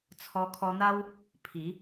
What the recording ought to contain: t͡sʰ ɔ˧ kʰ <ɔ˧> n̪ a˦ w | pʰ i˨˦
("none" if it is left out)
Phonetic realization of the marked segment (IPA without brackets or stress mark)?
ɔ˧